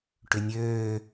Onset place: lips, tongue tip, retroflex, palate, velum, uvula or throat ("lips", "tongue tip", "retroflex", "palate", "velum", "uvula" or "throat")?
retroflex